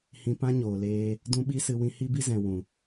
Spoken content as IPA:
hĩ˧pã˦ɲoː˨leː˧ | dũ˦ɓi˦sɨ˧ wĩ˧hi˦bi˦zɛ̃˨ wũ˨

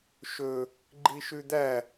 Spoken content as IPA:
ʃɵ | ɡ͡ǃiʃʉd̪æ

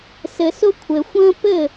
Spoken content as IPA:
sɘ˧sʊ˦ kʷʰɘ˨xʷə̃ː˦ pɘ˦˨

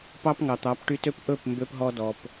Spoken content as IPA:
pɑ˦pŋɑ˨t̪ɑ˨˦p ʈy˧tø˦p ʔɵ˦˨p mbø˧pɦɔ˧dɔ˨p

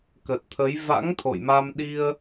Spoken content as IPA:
kə˨˩t̚t̪ʰə˨˦j va̰˧˥ŋ t̪ʰo̰˧˨jma˧m ɗi˧ə̯

